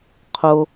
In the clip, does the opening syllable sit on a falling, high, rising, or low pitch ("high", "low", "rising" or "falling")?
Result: low